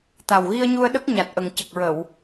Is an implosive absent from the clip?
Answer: no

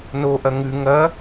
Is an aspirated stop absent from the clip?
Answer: yes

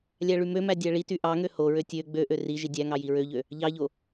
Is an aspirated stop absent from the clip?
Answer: yes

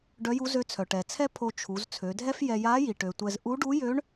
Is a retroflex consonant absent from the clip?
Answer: no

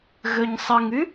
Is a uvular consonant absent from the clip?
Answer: yes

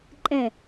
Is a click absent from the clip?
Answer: no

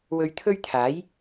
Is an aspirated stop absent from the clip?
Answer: no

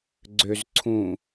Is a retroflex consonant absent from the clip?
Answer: yes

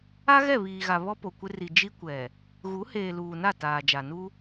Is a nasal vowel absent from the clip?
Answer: yes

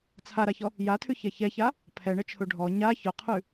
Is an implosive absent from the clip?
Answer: yes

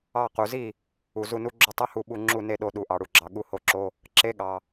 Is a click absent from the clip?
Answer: no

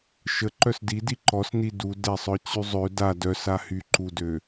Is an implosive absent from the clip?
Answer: yes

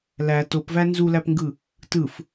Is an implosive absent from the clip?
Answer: yes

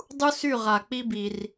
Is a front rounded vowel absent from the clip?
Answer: no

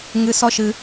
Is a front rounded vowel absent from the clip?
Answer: yes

